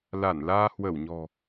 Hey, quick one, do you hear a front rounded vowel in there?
no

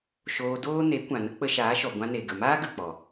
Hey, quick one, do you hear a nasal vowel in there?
yes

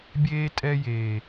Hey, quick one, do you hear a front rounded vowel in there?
no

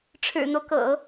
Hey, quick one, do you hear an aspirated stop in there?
yes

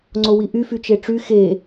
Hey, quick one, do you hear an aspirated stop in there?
no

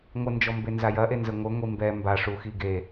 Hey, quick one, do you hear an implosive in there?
no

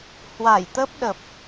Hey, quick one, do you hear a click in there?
no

